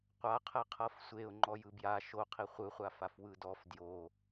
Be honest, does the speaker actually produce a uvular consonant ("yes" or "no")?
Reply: yes